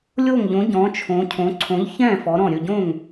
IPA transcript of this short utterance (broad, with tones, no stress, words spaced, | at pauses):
lʲo˥˩ŋʎõ˨˥ ɟɔ̃˨˥t͡ʃʰõ˨˥cʰõ˨˥ ǀʰõ˨˥ʎçɛ̃˥˩ fɔ˨˥ɾɔ̃˥˩ ɾʲɵ˥˩ɟõ˥˩ŋ